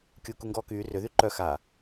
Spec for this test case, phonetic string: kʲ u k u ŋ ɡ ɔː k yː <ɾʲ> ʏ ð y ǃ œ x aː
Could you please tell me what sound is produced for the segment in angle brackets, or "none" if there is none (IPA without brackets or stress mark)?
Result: r